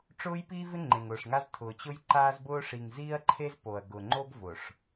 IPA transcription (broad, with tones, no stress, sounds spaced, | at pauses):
ʈ͡ʂ ʊː˦ j p iː˦ v ɪ˦ ŋ͡ǃ ẽ˨ ŋ ʊː˨ ʂ ŋ a˦ z tʰ ʊː˨ t͡ɕ ʊ˦ j ǃ aː˦ z b ʊː˦ ʂ i˨ ŋ z iː˦ ɐ̯ ǃʰ e˦ z p o˨ ɐ̯ ɡ ʊ˨ ŋ͡ǃ o˦ ɡ v ʊ˨ ʂ